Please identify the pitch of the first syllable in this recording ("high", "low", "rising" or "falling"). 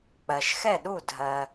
low